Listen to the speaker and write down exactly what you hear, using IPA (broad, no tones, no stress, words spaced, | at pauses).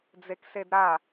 d͡zeksedɾa